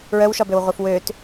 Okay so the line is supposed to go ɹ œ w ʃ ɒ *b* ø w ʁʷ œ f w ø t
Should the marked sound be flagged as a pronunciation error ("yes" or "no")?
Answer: no